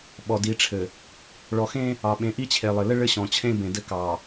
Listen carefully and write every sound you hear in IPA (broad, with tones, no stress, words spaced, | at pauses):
ɓɔ˨di˨˦ʈ͡ʂʰɘ˨ | ɭɔ˨xẽ˦ | ɑ˨ɓẽ˨˦ʔi˦ t͡ɕʰe˨lˠɘ˨lɘ˦ ɭɘ˦ɕɔ̃˨t͡ɕʰẽ˦ bẽ˨dɘ˦kɑ˨